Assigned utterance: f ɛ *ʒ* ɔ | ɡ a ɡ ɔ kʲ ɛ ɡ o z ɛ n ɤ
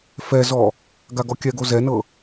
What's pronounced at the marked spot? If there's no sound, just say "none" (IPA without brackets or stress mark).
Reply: z